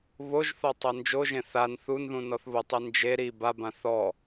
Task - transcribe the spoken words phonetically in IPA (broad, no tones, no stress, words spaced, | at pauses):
βoʒθɔ tˤond͡ʒoʒẽ θan θunðũ nɔθβʊtˤi nd͡ʒe ɾi babã θɔ